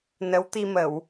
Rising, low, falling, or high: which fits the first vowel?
rising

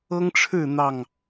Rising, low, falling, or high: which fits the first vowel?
high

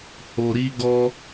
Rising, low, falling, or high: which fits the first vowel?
low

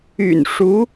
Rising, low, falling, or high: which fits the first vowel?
low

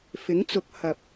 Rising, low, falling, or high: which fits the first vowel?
rising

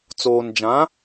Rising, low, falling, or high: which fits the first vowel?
low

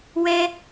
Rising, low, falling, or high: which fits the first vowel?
high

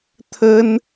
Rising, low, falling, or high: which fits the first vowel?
high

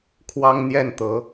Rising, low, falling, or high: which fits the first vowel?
high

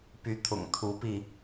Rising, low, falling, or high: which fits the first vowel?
rising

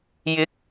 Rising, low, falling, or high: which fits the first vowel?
rising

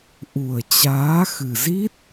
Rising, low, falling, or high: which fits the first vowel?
low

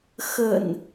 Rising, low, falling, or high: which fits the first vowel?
low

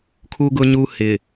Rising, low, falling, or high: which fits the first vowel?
high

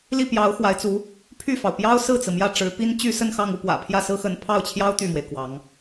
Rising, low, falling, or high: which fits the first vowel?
falling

